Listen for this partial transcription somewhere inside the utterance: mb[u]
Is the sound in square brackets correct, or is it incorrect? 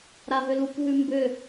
incorrect: ʏ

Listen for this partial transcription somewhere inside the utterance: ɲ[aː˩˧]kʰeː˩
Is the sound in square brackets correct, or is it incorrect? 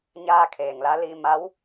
incorrect: aː˧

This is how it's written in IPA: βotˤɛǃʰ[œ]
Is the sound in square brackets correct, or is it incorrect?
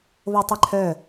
correct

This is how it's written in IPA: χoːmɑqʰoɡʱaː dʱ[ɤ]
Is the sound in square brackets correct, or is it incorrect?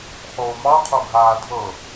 correct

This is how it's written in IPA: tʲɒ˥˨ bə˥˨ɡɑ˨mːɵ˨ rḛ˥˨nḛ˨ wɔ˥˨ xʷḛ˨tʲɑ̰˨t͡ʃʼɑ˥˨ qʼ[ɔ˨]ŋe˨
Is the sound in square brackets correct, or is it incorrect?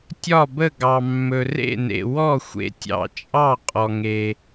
correct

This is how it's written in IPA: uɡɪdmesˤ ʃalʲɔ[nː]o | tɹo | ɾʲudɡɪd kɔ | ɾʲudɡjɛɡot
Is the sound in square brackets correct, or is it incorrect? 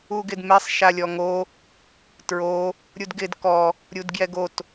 incorrect: ŋ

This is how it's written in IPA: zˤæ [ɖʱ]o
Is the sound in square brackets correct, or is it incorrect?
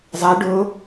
incorrect: ɖ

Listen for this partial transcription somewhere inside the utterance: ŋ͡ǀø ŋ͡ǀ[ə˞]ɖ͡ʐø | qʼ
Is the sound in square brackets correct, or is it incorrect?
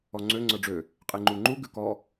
correct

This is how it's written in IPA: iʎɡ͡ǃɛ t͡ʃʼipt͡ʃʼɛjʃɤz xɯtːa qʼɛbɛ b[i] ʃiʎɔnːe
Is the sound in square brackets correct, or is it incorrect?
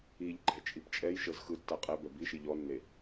correct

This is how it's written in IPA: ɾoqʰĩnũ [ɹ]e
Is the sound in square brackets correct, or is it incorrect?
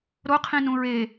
correct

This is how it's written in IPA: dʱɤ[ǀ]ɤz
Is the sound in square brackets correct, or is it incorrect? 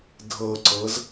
correct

